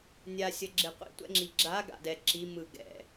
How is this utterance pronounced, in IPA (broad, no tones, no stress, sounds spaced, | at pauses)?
nʲ a sʲ ʌ ɡ͡ǁ e qʷ ḭ tʷ ɛ̰ ŋ͡ǁ i ɡ͡ǁ a ɡ a̰ d ɛ ǁ i m ɯ ɡ ɛ̰